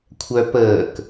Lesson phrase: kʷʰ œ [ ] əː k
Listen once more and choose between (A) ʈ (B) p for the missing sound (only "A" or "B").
B